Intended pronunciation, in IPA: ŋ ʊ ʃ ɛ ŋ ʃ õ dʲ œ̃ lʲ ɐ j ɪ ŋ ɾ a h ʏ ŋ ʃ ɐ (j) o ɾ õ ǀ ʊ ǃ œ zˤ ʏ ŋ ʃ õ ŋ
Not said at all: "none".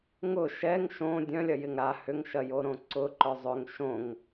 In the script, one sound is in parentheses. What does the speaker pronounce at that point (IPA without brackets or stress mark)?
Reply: j